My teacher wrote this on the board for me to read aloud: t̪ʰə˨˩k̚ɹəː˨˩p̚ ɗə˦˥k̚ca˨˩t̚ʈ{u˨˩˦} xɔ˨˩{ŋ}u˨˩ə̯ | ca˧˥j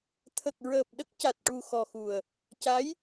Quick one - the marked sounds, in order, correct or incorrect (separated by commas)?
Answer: incorrect, incorrect